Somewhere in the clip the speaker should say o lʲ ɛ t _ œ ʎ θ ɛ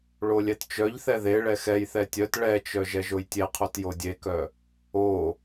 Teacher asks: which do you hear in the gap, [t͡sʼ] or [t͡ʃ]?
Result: t͡ʃ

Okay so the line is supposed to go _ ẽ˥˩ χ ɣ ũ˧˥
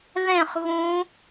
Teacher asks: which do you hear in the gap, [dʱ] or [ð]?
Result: ð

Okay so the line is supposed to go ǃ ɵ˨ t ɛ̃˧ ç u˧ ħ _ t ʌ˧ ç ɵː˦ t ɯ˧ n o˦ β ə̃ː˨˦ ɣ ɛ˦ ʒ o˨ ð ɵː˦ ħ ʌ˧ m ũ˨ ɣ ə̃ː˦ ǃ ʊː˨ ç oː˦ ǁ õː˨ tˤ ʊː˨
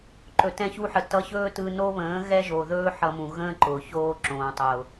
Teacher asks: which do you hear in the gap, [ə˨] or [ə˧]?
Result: ə˨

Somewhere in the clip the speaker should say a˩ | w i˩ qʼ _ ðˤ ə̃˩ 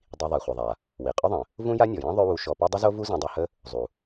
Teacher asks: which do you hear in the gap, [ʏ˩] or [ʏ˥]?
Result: ʏ˥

